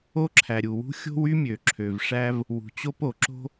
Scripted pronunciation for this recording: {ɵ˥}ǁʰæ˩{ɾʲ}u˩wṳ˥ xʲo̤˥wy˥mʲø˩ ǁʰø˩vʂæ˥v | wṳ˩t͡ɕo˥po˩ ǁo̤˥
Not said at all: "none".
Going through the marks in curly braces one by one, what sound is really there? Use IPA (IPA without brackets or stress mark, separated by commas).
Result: o˥, ɾʲ